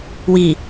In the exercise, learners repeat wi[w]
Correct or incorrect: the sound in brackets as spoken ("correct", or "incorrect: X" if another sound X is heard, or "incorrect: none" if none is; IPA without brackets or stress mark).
incorrect: none